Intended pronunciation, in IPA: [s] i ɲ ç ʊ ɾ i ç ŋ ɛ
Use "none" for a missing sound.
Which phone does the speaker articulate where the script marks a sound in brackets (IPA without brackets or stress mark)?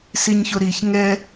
s